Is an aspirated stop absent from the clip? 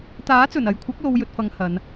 no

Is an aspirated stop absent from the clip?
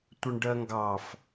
yes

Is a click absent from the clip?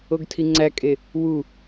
no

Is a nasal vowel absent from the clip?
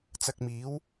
yes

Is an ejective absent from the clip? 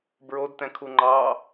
yes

